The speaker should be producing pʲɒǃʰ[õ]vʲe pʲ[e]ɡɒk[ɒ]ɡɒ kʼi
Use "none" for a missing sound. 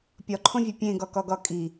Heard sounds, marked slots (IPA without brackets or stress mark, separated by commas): õ, ẽ, ɒ